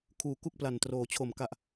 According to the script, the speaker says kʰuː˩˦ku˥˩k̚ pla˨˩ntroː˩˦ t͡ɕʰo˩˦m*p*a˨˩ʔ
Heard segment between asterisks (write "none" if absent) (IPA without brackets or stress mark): k